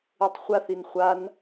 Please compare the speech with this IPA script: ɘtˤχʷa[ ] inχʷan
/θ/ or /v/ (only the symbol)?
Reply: θ